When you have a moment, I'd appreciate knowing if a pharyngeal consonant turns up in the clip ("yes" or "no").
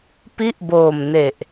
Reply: no